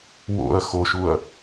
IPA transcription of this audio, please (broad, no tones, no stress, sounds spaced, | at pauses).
w o̰ ɐ̯ x o ʃ u ɐ̯